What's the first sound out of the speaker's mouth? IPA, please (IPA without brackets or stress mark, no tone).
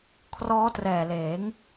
kʰ